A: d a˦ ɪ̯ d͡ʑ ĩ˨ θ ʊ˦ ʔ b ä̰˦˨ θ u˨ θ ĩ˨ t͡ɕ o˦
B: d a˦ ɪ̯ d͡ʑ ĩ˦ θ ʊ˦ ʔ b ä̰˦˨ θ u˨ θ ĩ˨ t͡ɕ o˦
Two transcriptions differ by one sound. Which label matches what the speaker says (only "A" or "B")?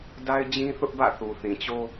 B